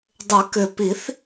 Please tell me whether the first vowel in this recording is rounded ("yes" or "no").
yes